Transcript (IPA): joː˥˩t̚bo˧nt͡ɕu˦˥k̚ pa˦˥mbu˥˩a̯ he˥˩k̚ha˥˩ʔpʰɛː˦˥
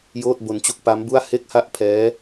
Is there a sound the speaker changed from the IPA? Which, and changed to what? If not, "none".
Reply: none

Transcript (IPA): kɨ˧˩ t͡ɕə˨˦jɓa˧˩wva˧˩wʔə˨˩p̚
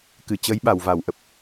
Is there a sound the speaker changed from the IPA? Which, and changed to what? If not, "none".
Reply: none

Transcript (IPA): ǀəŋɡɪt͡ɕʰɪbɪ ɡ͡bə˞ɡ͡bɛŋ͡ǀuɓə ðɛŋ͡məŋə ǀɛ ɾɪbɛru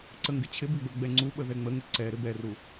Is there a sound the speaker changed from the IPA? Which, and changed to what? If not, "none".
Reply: none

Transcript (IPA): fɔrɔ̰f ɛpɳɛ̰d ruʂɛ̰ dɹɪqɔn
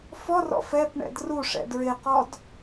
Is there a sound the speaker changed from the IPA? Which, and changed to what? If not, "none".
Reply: n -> d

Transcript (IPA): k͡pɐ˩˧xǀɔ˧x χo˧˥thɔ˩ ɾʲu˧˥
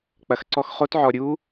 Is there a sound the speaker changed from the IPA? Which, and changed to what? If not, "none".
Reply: h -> ʕ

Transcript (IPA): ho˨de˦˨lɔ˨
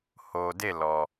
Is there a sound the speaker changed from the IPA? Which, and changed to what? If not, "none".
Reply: none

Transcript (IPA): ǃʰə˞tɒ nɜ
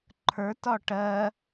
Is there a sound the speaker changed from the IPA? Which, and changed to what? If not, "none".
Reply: n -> ʈ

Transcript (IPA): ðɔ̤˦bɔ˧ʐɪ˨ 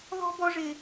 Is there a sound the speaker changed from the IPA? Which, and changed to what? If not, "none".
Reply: none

